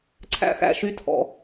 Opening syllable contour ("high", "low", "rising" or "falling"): high